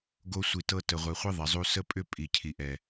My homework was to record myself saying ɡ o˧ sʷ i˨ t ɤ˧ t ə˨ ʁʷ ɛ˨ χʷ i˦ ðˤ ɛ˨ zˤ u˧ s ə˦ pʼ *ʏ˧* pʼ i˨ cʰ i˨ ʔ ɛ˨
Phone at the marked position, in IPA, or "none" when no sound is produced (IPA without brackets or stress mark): ʏ˦